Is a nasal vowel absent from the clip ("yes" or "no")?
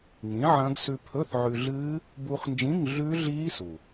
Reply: no